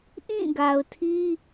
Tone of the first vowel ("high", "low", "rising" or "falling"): falling